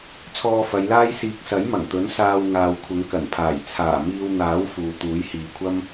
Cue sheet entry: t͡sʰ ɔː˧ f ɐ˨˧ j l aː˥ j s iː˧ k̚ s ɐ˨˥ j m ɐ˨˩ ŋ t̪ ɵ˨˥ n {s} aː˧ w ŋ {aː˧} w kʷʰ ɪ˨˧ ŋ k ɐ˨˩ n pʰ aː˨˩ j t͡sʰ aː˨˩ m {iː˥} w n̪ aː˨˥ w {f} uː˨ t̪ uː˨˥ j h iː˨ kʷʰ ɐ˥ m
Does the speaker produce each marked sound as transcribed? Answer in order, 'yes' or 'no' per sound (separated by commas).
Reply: yes, no, no, yes